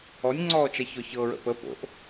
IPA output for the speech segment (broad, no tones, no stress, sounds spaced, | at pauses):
ɔ nʲ ŋ͡ǀ ɔː t͡ʃ a ç ɔ ç ɤ ɹ ə̰ p ə p o̰ ʔ